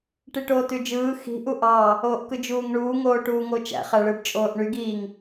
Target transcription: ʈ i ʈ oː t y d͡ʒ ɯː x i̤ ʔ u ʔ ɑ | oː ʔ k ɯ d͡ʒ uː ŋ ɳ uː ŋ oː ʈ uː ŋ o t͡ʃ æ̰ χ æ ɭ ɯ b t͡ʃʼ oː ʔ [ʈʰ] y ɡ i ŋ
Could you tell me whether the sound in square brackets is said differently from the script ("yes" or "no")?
yes